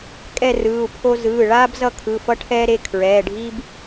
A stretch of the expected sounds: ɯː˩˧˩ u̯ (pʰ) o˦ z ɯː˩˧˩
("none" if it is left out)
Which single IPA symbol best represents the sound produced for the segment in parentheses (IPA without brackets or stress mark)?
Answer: pʰ